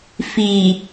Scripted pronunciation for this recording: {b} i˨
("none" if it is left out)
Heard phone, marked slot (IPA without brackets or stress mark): f